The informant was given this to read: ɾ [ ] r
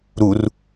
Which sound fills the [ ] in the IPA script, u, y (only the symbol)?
u